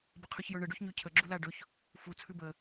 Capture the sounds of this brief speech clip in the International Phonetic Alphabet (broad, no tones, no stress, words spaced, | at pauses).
bəqʰʉçjɵɳə ɖʉçɲʉcʰə ɡ͡ǁulaɖɵç | fu t͡sʰʉbə